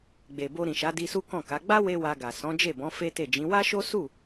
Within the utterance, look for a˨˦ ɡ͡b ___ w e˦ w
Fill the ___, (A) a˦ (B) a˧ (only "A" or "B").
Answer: A